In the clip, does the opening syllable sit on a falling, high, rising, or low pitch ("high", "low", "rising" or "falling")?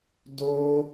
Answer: high